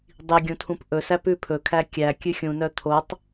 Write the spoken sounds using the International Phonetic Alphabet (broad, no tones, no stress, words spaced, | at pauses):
dˤiɡʲũtʰũp ʔɵsæpʉ pʰɵkʰæ kʲækʲʉ xʲũnœ t̪ʰotˤ